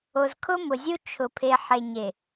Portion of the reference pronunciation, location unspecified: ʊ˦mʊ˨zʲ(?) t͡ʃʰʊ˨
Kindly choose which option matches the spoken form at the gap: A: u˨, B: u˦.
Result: B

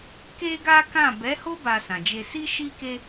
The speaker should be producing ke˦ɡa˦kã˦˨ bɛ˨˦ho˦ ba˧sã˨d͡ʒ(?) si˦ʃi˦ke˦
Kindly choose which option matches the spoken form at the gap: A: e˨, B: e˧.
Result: B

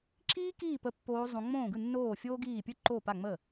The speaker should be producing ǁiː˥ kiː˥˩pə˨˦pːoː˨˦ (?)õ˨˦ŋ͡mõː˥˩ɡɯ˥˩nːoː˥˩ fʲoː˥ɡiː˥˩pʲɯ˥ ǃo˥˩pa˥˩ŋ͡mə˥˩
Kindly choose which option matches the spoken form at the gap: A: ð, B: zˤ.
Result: B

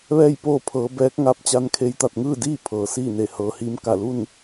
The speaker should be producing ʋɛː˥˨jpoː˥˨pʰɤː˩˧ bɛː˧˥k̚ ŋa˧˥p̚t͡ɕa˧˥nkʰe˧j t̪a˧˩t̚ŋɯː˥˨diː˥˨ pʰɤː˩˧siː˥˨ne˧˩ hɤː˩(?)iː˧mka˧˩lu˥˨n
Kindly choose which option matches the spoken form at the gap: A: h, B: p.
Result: A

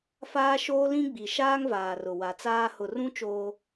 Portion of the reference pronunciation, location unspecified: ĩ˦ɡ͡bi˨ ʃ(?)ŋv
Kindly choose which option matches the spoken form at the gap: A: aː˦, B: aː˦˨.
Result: A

